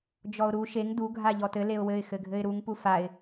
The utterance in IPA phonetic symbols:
d͡ʒɔʊ̯ɾu ʃeŋ du ɡʱaʎɔtɘ leʊ̯wɘɪ̯ xɘɡʱɘɪ̯ɾuŋ pufaɪ̯

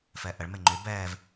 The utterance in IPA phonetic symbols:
fɛʔəɭ meŋ͡ǃy bɛːv

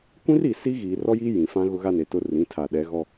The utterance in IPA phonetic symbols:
kʷĩ˦ri˨ si˦ ɣiː˨rɔ˦jiː˦ jĩ˨ fã˦ ɣʊ˦ɣa˦ne˨tʊ˦ rĩ˨˦tʰa˨ɗɛ˨˦ ɣɔ˦

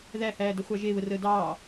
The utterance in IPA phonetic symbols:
ðæhæːdəχʷɑ ʒeβərəː dɑː

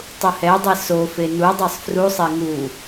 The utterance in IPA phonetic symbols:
tˤuhɛdˤe sofe nudˤɤsˤ frusˤe ŋu

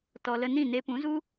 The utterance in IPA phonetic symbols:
tɔ˧lə˦ nĩ˦˨ne˧pũ˨˦zu˦

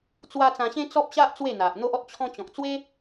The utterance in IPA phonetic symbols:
t͡swa˦ t͡sã˧ɕẽ˦ t͡sɔ˦p̚ɕa˦ʔ t͡swe˥˧n̪a˨ʔn̪o˦ʔɔ˦t̚ t͡ɕʰɔ̃˧t͡ɕɔ̃˨k̚t͡swe˦

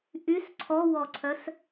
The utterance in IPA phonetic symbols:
ʔys ǀʰɔwɔǀʰœs

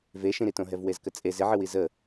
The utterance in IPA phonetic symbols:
veʃĩɾitõ ɦɛvwezkət͡sʼe zɪʕɨwi zə

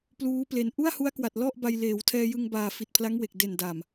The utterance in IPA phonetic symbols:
pluː˦˥ple˧n ʔu˥˩a̯hu˦˥a̯kwa˨˩t̚ lɔ˥˩ʔba˧j leː˩˦wtʰɛː˧jɯ˧ŋbaː˨˩ fi˨˩t̚pʰla˦˥ŋwe˨˩k̚ de˨˩nda˨˩m

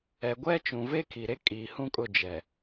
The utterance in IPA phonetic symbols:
ɛ˨ɡʷɛ˦t͡ʃũ˨ ve˦ kʰi˨ɾe˦ kʼiː˨hũ˦kʼʊ˦˨d͡ʒɛ˨

